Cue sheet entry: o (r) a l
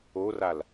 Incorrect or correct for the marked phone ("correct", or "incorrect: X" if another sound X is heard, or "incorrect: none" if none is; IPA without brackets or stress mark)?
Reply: correct